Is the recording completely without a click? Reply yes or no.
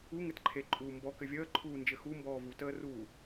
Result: no